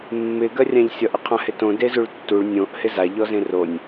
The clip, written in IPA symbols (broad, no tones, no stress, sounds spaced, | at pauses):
mː ɪ ɡ ɜ rʲ ã ʎ sʲ ʌ ʔ ɪ qʰ ã h ɪ t õ d e z u ɭ tː u ɭ nʲ õ ʔ h ɪ z a ʎ ɔ z ẽ r o nʲ